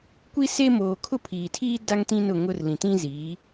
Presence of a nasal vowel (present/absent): present